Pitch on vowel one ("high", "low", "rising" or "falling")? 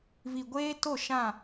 low